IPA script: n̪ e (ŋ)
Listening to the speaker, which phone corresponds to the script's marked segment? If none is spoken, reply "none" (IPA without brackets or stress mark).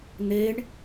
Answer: ɳ